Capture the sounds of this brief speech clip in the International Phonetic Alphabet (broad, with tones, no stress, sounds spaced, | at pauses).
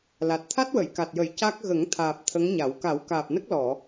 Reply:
l a˨˩ t̚ t̪ʰ a˦˥ t̚ w ə˨˩˨ j k a˨˩ t̚ j ə˨˩˦ j c a˦˥ k̚ ɣ ə˨˩˦ ŋ t̪ʰ aː˨˩ p̚ t̪ʰ ə˧˥ ŋ ɲ a˨˩˦ w k a˨˩˦ w k aː˨˩ p̚ n ə˦˥ k̚ l ɔ˨˩˨